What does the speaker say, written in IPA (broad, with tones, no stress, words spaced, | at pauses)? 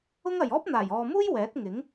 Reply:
ʊ˥ŋɐ˨j ɔː˥p̚n̪aː˨˩jɔː˨muː˥j wɛː˨˥t̚ŋɪ˨˥ŋ